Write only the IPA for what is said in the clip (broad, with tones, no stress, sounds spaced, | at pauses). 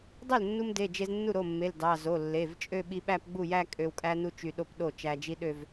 dˤ ø˥˩ l nː u˧ m d e˩˧˩ d͡ʒ e˧ z nː u˥˩ ɾ o˩˧˩ mː e˩˧˩ l d ɑ˩˧˩ z o˩˧˩ lː e˩˧˩ v t͡ʃʼ ø˥˧ ɓ i˧ ɓ æ˥˧ p ɡ͡b u˥˩ j æ˥˧ kʼ ø˧ w kʼ æ˥ n u˥ t͡ʃ y˧ ɗ o˥˧ p ɗ o˥˩ t͡ʃ æ˧ d͡ʒ i˥ ɗ ø˥˧ v